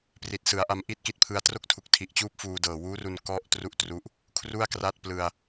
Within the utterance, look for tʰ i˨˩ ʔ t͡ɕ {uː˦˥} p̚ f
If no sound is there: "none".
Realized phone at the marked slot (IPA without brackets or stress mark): uː˦˥